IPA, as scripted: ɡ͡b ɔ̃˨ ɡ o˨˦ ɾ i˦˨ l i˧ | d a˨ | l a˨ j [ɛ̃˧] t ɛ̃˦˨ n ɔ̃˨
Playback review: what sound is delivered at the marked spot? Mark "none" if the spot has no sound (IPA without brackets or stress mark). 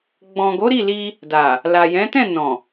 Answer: ɛ̃˨˦